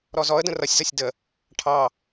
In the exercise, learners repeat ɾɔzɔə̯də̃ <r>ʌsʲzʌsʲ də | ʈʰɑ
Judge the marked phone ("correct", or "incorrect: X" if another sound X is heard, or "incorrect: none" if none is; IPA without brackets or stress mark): correct